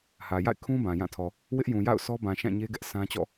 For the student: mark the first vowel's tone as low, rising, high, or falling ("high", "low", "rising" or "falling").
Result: low